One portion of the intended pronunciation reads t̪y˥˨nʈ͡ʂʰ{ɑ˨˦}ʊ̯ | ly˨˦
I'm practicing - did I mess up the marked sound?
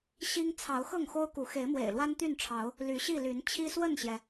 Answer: no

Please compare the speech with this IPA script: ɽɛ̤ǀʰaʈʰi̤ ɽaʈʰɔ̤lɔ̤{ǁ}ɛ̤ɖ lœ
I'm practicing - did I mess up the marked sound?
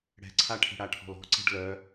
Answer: yes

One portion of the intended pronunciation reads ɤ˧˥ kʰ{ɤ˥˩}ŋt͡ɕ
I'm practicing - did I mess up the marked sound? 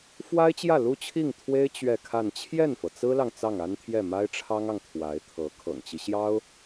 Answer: yes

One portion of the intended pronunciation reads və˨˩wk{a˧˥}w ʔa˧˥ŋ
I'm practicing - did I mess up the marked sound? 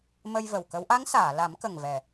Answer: yes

